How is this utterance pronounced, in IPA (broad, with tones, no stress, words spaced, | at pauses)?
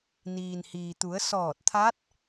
niː˩n hiː˩t̪u˩˧ə̯ sɔː˧˩t̚t̪ʰa˧˥t̚